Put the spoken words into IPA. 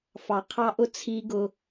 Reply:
f ɑ˨ qʰ ɑ˦ ʔ ʊ˦ t͡sʰ i˦ ɡ ʊ˦

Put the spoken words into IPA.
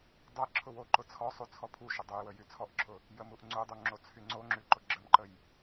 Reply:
dˤ ɛ ǁʰ ʊ w o ǃ ʊ t͡sʰ ɔ sˤ u t͡sʰ ɔ pʰ u ʃ ʊ dˤ ʊ j w ə j y t͡sʰ ɔ ʔ ǁʰ ʊ | j ə m u ʔ ŋ͡ǀ u dˤ u ŋ͡ǁ o t͡sʰ y ŋ͡ǀ o ŋ͡ǁ y ǃ ʊ ɡ͡ǁ ə m ǃ ə j

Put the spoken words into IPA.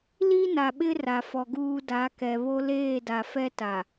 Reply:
l i˦ n a˨ ɓ ɪ˦ r a˨ f ɔ˨ ɡ uː˨ d a˨˦ k ɛ˨ β o˦ l eː˦˨ d a˨ f ɛ˦ t a˨

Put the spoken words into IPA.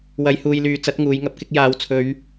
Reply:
w ɐ˨˧ j h uː˨ j l yː˨˧ t͡s ɐ˨˥ t̚ ŋ uː˨˧ j ŋ ɐ˧ p̚ k ɪ˧ k̚ j aː˨˧ w t͡sʰ ɵ˨˧ ɥ

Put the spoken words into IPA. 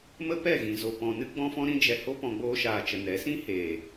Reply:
m ə˦ p ɛ˦˨ ɣ ĩ˨ z o˨ p ɔ̃˧ n ɨ˦ ɡ͡b ɔ̃˦ f ɔ̃˦ ɾ ĩ˦ d͡ʒ ɛ˧ h o˦ p ɔ̃˧ ɡ͡b oː˧ ʃ aː˨ t͡ʃ ə˨ n ɛ˨˦ s ĩ˦ h eː˨

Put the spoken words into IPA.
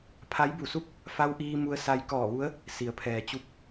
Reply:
pʰ a˧˥ j b u˧˩ s u˥˨ k̚ | f a˧ w ʔ iː˧ m u˧ ə̯ s a˧ j k ɔː˧˩ ʋ u˧˥ ə̯ | s i˩ ə̯ pʰ ɛː˩ t͡ɕ u˧ p̚

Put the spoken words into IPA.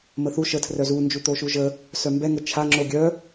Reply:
m ə θ u ʃ ə tʰ r œ z u n d͡ʒ u t̪ o ʃ u ʒ ə | s œ m b ɛ ŋ ə t͡ʃʰ a ŋ͡ǁ o ɡʲ œ

